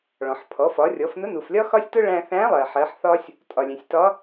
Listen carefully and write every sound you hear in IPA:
ɭ ɔ̃˩ ħ pʰ ɔ˩˧ f ɒ˩˧ rʲ ɔ˩˧ f n ʊ˧˥ n u˩ f lʲ ɒ˥ x ɒ˥ sʲ t ʊ˥ ɭ æ̃˧ θ æ̃˧˥ lˠ ɜ˩ ħ ɜ˩˧ ħ θ ɒ˥ sʲ | tʼ ɒ˩ lʲ æ̃˩ sʲ t ɒ˧˥

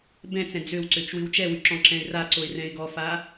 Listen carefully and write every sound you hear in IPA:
b ɛ̃ t͡s ɛ̃ d͡z ø w ǀ ø t͡ʃ w ɨ w t͡ʃ ɛ w y ǁ ɔ̃ ǁ ɛ̃ ɪ̯ r a ǀ o ɪ̯ r ɛ̃ ɪ̯ ɡ ɔ f a

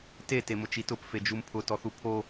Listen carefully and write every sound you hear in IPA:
t e t e m ʊ t͡ʃ i t ʊ p f e d͡ʒ u m pʰ ʊ t ɔ θ u pʰ o

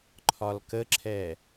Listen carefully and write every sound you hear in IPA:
ǃʰ ɒ l k ə ǁʰ ɛ

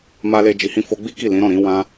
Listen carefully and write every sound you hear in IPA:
m a˧ l e˧ d͡ʒ i˧ h ĩ˦ f o˦ ɡ͡b i˦ k i˦˨ l ĩ˨˦ ɾ ɔ̃˦˨ ɾ ĩ˨˦ w ã˦

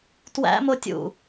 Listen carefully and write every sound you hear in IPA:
t w æ̰ m o tʲ ṵ

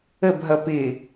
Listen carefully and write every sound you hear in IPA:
ə b ɦ ʌ p ɪ

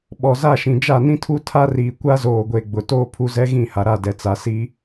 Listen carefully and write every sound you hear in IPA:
ɓ ɔ˨ z a˦˨ ʃ ĩ˨ d͡ʒ a˦˨ n ĩ˦ tʰ u˦ tʰ a˦ r iː˨ kʷ a˦ z oː˨ ɡʷ e˨ ɡ͡b ʊ˨ t oː˦ pʰ u˦ z ɛ˦ ɣ ĩ˦˨ h a˨ ɾ a˦˨ d ɛ˨ t͡s a˨ s i˦

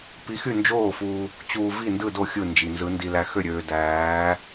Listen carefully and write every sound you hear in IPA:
p i˧˥ x y˥˨ n d͡ʒ oː˥˨ f u˧ | t͡ɕ uː˧ v i˥˨ n d ɯ˥˨ d o˥˨ xʲ ɯ˥˨ n d͡ʒ i˧ n z ɯ˧˥ n d i˧ l æ˧ x ø˥˨ ɾʲ øː˧ d æː˧˥

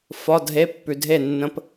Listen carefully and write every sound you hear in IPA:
f ɒ˧˥˧ dʱ e˧˥˧ pː ʉ˨ dʱ e˥˩ nː ə̃˧˥˧ p

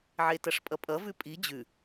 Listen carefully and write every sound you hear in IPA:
ʕ e t ʌ ʂ pʼ ʌ pʼ ʌ v ʉ pʼ i d͡ʑ ʉ

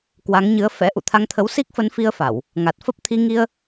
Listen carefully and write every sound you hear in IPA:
k w a˨˦ ŋ ɲ ɨ˨˦ ə̯ f ɛ̰˧˥ ʔ ṵ˧˨ t̪ʰ a˧ ŋ t̪ʰ ə˨˦ w s i˦˥ k̚ f ə˨˦ n f i˧ ə̯ f a˧˩˨ w | ŋ a˨˩ t̚ f ə˦˥ p̚ t̪ʰ i˧ ŋ i˧ ə̯

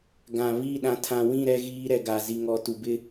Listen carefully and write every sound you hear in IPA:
ɡ ã˨ β i˦˨ ɗ ã˨ tʰ ã˨ w ĩ˦˨ ɾ ɛ˦ ɣ iː˦ ɾ ɛ˨ ɡ a˨ z i˨ ŋ ɔ˨ t u˨ b ɪ˦

